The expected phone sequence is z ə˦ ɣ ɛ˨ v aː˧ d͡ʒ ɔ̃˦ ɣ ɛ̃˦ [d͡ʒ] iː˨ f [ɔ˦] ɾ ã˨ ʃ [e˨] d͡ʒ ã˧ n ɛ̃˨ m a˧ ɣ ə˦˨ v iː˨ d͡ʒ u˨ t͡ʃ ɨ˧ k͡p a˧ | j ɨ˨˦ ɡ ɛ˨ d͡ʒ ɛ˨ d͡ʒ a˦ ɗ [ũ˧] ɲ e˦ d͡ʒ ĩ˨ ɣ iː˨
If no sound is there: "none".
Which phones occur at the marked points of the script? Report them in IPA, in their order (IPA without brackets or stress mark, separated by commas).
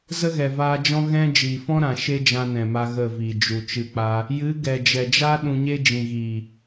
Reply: d͡ʒ, ɔ̃˦, e˦, ũ˧